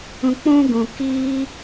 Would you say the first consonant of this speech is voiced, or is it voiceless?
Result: voiceless